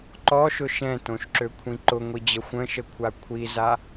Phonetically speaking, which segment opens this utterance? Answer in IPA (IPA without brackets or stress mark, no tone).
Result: ǃ